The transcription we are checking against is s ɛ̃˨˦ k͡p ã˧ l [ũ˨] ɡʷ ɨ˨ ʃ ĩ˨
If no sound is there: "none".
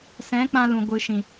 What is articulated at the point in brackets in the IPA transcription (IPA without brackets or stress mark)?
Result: ũ˨